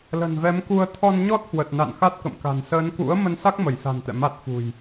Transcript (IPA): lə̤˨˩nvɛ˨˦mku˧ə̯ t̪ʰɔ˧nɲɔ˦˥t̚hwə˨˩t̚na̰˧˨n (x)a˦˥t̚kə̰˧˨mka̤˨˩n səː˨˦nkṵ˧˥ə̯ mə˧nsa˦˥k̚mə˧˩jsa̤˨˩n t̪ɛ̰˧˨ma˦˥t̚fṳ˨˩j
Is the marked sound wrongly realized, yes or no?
no